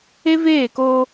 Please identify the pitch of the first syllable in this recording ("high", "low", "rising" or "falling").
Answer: high